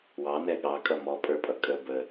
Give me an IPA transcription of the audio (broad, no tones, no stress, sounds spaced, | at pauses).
w ɑ n ɛ ɠ ɑ kʼ ʌ m ɔ pʼ ə˞ pʼ ʌ kʼ ə b ə